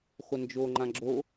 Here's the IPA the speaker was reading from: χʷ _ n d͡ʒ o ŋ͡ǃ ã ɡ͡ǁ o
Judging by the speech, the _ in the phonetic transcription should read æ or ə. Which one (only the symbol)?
ə